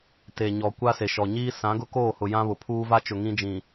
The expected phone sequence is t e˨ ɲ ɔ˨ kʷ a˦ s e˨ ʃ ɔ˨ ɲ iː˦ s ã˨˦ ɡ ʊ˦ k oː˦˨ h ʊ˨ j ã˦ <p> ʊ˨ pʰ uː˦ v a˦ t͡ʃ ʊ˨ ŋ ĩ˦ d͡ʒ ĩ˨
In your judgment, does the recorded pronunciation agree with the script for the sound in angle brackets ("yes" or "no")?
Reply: no